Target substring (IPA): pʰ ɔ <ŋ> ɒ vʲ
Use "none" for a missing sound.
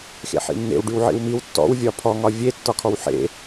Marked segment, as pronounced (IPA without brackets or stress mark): ŋ